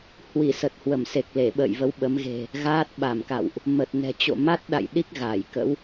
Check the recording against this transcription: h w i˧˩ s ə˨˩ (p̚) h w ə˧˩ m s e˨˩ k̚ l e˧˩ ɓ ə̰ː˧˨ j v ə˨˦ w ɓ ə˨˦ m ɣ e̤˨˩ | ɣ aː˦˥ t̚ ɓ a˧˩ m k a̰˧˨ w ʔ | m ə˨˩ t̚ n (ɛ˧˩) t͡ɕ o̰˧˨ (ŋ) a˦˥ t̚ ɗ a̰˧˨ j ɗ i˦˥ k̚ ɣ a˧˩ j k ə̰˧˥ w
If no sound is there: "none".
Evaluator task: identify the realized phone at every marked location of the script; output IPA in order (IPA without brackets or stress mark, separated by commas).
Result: t̚, ɛ̤˨˩, m